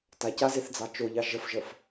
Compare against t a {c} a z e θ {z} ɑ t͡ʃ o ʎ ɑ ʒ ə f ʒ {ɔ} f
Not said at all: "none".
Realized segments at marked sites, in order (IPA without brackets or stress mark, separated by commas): c, d͡z, ə